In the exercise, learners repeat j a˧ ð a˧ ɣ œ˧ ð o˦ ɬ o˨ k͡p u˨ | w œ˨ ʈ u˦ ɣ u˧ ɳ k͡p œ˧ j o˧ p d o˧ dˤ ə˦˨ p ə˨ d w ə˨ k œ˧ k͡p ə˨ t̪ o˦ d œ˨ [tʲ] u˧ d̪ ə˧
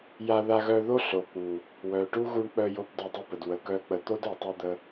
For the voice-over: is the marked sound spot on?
no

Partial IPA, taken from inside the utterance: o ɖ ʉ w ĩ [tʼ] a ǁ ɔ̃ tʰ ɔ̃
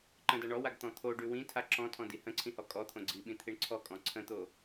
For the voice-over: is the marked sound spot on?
no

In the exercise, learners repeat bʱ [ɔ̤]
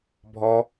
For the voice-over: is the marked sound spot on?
no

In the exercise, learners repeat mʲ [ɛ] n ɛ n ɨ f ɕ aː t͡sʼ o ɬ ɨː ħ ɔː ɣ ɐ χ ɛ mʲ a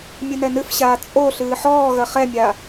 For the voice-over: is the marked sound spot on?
no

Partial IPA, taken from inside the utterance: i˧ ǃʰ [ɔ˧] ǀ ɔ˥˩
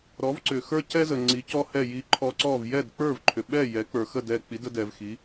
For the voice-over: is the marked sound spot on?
yes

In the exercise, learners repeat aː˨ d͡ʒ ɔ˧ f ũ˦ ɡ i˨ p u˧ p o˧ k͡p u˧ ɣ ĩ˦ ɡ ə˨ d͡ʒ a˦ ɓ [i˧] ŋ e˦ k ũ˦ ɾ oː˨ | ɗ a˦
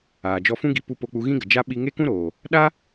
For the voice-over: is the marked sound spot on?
yes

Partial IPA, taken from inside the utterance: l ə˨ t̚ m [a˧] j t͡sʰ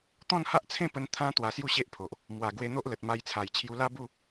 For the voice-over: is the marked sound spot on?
yes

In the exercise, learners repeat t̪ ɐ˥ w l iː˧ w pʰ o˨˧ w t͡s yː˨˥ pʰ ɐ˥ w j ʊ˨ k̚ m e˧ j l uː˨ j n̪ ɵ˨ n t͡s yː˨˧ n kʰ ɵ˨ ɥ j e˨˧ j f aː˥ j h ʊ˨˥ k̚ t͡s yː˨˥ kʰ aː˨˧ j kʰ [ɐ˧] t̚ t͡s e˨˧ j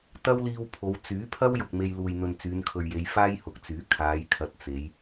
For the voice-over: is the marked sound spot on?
no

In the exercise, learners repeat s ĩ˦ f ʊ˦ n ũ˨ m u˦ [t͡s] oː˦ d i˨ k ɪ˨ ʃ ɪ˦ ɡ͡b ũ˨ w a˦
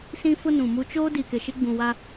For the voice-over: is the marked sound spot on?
no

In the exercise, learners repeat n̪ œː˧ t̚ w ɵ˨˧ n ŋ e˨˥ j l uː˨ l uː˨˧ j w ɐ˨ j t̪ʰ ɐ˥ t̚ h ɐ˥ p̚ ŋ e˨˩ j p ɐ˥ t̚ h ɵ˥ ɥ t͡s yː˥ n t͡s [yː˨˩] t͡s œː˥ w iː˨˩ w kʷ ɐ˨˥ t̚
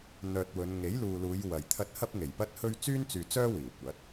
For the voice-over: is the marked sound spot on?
no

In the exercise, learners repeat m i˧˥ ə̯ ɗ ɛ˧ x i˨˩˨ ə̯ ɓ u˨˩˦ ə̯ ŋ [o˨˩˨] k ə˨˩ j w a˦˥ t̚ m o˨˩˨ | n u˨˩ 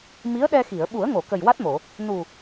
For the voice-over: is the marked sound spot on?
yes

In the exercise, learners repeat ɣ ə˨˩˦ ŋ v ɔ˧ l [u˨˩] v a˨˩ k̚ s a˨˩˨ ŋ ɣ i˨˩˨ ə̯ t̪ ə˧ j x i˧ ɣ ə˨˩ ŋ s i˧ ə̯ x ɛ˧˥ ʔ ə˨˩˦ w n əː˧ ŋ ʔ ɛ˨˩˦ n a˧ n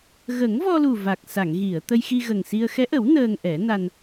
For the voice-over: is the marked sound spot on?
yes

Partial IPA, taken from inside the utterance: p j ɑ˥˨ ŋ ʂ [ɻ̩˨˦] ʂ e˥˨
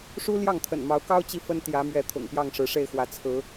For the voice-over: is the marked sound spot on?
yes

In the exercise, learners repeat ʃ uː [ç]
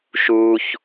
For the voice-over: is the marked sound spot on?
yes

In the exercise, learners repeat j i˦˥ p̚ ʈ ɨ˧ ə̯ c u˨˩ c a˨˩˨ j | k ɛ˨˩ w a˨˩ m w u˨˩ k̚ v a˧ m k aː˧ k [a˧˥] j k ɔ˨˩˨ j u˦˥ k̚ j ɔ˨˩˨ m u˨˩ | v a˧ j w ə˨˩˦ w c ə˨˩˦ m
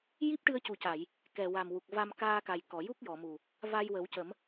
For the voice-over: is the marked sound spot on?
no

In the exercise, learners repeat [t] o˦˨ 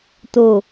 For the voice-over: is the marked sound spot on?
yes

